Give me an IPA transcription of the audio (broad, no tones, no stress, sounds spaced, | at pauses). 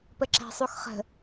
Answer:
p ə ǁ æ̤ sˤ u x χ ə̤